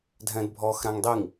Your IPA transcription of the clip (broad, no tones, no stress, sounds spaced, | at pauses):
dʱ ɛ̃ d bʱ ɔ x ɾ ã ŋ dˤ i ŋ